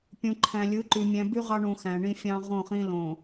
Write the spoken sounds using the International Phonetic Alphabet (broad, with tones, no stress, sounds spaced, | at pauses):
pʲ ũ˨ ǃʰ æ̃˨ lʲ ɯ˨˦ ǃ y˨ mʲ æ̃˨ b y˦ ʁ ɑ˦ ɳ ũ˨ x æ̃˨ ɳ ĩ˦ fʲ ɑ̃˦ ʁ õ˦˨ χ ĩ˦ l õ˨